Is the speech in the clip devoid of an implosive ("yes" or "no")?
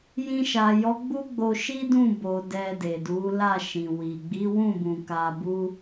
yes